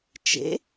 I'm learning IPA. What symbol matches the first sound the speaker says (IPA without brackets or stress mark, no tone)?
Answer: t͡ʃ